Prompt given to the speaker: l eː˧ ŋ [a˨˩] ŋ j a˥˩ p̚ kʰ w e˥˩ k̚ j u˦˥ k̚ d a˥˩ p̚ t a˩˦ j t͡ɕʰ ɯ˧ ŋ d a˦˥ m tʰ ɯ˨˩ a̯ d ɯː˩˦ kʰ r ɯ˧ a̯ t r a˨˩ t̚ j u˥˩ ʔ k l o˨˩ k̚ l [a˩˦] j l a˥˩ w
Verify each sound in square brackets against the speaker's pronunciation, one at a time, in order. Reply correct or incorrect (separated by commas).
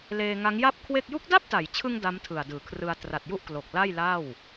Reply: incorrect, incorrect